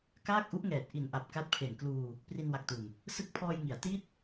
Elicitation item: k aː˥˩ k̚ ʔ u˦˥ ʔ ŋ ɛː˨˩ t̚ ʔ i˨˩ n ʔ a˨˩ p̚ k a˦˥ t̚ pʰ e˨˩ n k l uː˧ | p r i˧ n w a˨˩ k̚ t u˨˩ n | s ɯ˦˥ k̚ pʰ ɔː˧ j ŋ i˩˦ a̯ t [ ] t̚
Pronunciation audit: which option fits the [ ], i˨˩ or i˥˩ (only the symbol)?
i˥˩